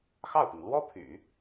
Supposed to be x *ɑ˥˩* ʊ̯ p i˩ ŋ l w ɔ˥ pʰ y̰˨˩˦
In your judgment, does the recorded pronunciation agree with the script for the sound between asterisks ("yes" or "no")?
yes